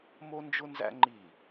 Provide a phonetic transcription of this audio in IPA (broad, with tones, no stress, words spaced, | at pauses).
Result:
mo˦nd͡ʒʊ˦nzæ̰˦ ŋ͡ǃi˦˨